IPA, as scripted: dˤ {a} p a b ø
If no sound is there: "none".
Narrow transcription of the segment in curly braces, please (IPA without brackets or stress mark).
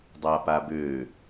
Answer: a